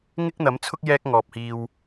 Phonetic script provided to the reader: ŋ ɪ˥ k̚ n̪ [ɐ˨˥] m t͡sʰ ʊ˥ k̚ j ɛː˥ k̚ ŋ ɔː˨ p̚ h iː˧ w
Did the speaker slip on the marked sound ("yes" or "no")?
no